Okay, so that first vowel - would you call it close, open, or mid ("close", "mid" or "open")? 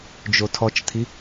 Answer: mid